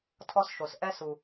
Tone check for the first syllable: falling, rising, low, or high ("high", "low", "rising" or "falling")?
high